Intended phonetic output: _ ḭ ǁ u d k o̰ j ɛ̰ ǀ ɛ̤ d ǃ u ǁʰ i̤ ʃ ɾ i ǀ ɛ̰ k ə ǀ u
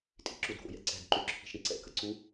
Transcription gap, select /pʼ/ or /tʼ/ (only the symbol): tʼ